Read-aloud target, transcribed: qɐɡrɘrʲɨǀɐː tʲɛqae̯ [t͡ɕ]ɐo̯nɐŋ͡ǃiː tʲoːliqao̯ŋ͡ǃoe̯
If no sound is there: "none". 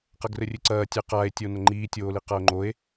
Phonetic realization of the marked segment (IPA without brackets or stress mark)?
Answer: tʲ